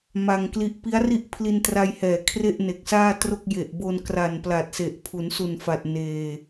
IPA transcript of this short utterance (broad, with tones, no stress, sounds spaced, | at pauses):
m a˧ ŋ k l i˦˥ ʔ p i˦˥ a̯ r i˥˩ ʔ pʰ l i˧ n t r a˧ j h ɛː˨˩ kʰ r e˥˩ ʔ n e˨˩ k̚ s aː˥˩ t r o˥˩ k̚ j e˨˩ ʔ b o˧ n k r a˨˩ n p l a˨˩ t̚ s e˨˩ ʔ pʰ u˩˦ n s u˨˩ n f a˨˩ t̚ n eː˧